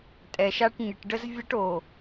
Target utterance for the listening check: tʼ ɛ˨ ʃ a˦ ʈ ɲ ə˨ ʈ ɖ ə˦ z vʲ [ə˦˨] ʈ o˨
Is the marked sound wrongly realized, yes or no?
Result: yes